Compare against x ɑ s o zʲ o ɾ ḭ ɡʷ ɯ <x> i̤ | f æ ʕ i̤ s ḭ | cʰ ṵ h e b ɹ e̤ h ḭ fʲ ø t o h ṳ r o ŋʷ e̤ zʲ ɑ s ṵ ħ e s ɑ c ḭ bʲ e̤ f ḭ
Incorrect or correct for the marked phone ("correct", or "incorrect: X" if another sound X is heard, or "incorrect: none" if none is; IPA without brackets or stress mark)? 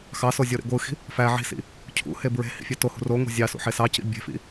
correct